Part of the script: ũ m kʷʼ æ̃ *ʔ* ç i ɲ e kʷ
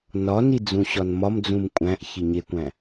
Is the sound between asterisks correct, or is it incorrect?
correct